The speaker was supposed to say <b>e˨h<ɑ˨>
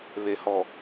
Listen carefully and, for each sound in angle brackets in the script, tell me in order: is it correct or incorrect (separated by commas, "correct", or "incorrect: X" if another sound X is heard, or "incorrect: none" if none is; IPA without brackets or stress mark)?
incorrect: β, incorrect: ɔ˨